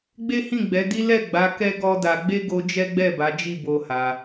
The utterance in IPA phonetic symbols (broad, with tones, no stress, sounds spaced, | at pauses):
ɡ͡b e˦ h ĩ˦˨ ɡ͡b ɛ˨˦ d i˦ l ɛ˦˨ ɡ͡b a˨˦ k ɛ˦ ɡ ɔ˦ d a˧ ɡ͡b e˦ ɡ o˧ d͡ʒ ɛ˦ ɡ͡b ɛ˦˨ b a˨˦ d͡ʒ i˦˨ b o˧ h a˧